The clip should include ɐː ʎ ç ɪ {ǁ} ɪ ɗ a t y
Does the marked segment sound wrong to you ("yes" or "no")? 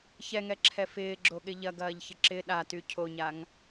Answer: no